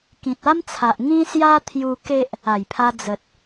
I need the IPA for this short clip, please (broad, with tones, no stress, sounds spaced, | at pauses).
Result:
k ĩ˨ t̚ a˦ m t͡sʰ a˨ ʔ ŋ ĩ˦ s j a˦ t̪ʰ j u˧ k e˦ ʔ | a˨˩ j pʰ a˧ d͡z ə˨ t̚